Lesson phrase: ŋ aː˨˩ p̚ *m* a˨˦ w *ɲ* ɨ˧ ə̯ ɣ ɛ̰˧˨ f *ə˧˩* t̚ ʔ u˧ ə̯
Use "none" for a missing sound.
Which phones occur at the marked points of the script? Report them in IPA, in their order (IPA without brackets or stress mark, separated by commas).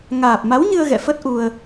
m, ɲ, ə˦˥